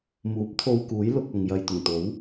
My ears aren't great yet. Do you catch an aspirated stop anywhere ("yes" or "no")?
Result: yes